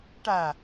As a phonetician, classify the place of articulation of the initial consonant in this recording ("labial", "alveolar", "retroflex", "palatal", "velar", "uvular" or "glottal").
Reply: retroflex